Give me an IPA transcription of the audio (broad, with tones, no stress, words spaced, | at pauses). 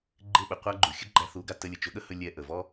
ɡ͡ǃɪ˦˨ɓə˨qʷa˦ɡ͡ǃu˨ xʲɵ˦ɡ͡ǃæ˧θu˨˦ɡa˧ tə˧ lʲə˨t͡ʃɵ˨˦ɠə˦hɵ˧ lʲɛ˧ʔə˨vɔ˦